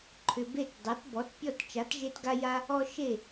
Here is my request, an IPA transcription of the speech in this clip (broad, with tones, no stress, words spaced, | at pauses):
ǃʰʏ˨be˥˩tdˤe˩˥t bɔ˩˥tpʲɔ˥˩t t͡ʃa˩˥tʒe˦tɡa˦ja˦ | ɔ˦ʃe˥˩